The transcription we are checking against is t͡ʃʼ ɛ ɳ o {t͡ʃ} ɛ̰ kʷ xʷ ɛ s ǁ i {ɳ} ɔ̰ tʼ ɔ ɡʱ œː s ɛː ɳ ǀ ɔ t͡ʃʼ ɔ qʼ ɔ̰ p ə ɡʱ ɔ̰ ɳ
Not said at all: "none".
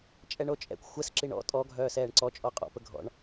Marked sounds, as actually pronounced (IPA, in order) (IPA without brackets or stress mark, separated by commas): t͡ʃʼ, ɳ